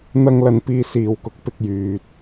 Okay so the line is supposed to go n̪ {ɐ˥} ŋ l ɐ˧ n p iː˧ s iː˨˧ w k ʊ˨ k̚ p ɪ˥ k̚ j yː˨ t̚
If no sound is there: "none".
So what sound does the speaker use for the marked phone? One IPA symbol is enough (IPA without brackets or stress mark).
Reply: ɐ˥